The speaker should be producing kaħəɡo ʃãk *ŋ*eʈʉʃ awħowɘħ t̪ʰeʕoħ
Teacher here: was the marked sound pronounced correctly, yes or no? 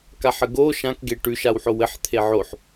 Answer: no